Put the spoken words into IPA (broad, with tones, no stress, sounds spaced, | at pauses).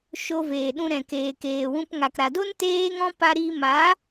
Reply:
ʃ o˧ v eː˨ ɗ ũ˧ ɾ ɛ̃˨ k eː˨ k eː˨ w ũ˧ p ŋ a˨ k ɾ a˨ d o˦ n t eː˦ ŋ ɔ̃˦ p a˧ ɾ i˧ m a˨˦